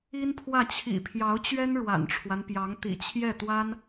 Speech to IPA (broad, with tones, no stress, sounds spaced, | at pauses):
i˥ n pʰ w ä˥˩ t͡ɕʰ ḭ˨˩ pʰ j ɑ˧˥ ʊ̯ t͡ɕ ɥ ɛ˥ n ɻ w a̰˨˩ n ʈ͡ʂʰ w a˦ n p j ɑ˧˥ ŋ t̪ ḭ˨˩ t͡ɕʰ j ɛ˥˩ t̪ w a˥ n